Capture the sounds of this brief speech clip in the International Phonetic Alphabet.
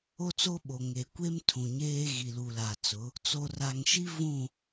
o˦ t͡s o˦ ɓ o˨ ŋ e˨ kʷ e˦ m tʰ ũ˨ ɲ eː˦ ɣ i˨ l u˨ l a˨ t͡s ʊ˨˦ | t͡s o˨ r a˨ ŋ ʃ i˦ v ũ˦˨

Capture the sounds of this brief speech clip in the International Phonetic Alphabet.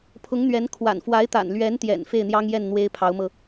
pʰ ʊ˧˥ ŋ n̪ ɥ ɛ˧˥ n kʰ w a̰˨˩ n f w a˧˥ ɪ̯ t̪ a̰˨˩ n l ɥ ɛ˧˥ n t̪ j ɛ̰˨˩ n f e˥˩ ɪ̯ n̪ j ɑ˥ ŋ j ɛ˥˩ n n̪ w e˥ ɪ̯ pʰ ɑ˧˥ ʊ̯ m ɤ˧

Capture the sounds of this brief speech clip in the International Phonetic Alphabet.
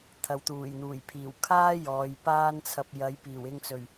t̪ʰ ɐ˨˧ w t̪ uː˨˩ j n̪ uː˨˩ j pʰ iː˨˩ w kʰ aː˥ j ɔː˨˧ j p aː˥ n t͡sʰ ɐ˧ p̚ j ɐ˨˥ j p iː˨˩ w ɪ˧ ŋ t͡s ɵ˨˩ ɥ

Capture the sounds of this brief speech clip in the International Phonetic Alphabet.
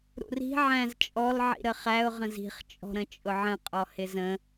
ɾ ṵ r i̤ ʕ æ̃ z t͡ʃʼ ɔ l ʕ ḭ ɾ ə χ æ ʊ̯ ʁ ə̃ z i̤ χ t͡ʃʼ ɔ̤ ɾ ə̃ t͡ʃʼ ʊ ʕ ə̃ qʼ ɔ h ɪ z ə̃

